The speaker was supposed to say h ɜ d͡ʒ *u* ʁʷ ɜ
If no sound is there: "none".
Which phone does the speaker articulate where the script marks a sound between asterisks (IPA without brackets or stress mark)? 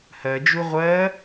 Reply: u